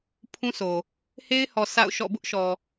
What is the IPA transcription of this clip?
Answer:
pʰ ũ˦ sʰ o˨ | h e˦ ɪ̯ h ɔ˨ s a̰˦˨ ʊ̯ ʃ ɔ̰˦˨ b ʊ˦ ʔ ʃ ɔ˨

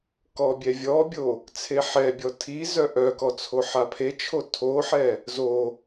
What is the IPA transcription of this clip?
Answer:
k ɔ bʲ ɛ vʲ ɔ bʲ o | t͡sʰ e ħ ɛ bʲ ɔ tʰ i z œ ʔ œ k ɔ t͡sʰ o ħ a pʰ e t͡ʃʰ o tʰ o ħ ɛ | z o

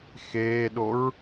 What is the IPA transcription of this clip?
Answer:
x eː ɗ o ɹ

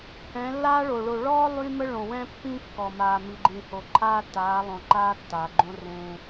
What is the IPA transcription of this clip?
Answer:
h ɛ̃˨˦ lː aː˦ ɭ o˨ ɭ o˨ ɭ ɔː˦ lˠ y˦ m ə˦ ɭ õ˨ w ɛ̃˦ pː ĩ˦ kː ɔ˨ m aː˨ m i˨ ɡ͡ǃ ĩ˨ h o˨ ǃʰ aː˦ tː aː˨˦ lˠ õ˨ ǃ aː˦ tː aː˨ ɡ͡ǃ õ˦ r ẽː˦

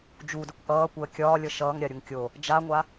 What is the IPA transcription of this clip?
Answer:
d͡ʒ u d ə kʷ ʔ ʌː kʷ əː kʲ ɒː lʲ ʌ ʃ ʌː ŋ ɾʲ a ɾʲ u ŋ kʲ o | d͡ʒ a ŋʷ a

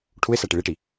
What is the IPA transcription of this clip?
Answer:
ʈʰ u ɪ̯ s æ ʈ i ɭ i ʈ i

